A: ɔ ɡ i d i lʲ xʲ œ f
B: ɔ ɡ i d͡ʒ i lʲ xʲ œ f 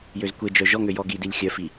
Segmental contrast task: A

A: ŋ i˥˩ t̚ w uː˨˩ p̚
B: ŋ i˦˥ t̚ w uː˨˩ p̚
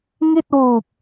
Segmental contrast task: A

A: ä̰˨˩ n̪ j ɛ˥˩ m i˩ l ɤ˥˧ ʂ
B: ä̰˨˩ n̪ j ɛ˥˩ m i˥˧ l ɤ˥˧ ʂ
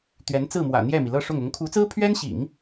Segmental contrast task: A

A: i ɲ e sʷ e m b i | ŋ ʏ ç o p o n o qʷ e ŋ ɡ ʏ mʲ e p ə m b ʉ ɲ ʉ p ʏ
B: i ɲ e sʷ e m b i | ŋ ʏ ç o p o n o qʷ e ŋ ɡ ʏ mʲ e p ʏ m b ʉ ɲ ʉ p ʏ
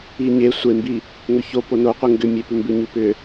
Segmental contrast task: B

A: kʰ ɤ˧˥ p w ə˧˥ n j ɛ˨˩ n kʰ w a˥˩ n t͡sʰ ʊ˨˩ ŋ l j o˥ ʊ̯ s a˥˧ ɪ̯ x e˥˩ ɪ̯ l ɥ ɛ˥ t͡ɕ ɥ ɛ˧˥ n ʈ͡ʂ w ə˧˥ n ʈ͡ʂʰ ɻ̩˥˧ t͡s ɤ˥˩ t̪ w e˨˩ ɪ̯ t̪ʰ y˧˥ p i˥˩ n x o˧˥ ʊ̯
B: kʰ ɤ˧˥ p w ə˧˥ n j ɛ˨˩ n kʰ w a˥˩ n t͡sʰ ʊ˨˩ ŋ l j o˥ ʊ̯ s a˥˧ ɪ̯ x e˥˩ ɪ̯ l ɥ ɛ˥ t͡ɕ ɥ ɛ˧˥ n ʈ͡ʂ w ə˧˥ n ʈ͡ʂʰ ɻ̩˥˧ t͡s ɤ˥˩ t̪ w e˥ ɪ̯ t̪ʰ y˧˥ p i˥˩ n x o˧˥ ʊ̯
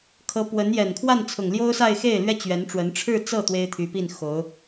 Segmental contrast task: B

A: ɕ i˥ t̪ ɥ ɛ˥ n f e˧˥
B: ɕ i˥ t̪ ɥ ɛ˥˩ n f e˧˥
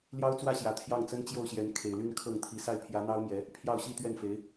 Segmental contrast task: B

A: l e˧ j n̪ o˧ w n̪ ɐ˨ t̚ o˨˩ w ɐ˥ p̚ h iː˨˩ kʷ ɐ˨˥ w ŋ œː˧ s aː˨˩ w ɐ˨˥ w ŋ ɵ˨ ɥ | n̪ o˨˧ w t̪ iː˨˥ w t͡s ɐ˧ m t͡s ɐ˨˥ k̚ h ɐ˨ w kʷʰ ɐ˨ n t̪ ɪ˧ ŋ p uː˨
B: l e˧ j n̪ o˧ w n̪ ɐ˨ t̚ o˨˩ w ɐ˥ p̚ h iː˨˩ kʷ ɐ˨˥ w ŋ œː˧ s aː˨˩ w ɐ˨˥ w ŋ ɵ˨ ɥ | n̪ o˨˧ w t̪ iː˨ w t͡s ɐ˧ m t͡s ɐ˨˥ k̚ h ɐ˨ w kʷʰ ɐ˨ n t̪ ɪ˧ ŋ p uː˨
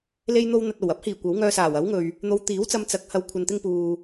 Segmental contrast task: A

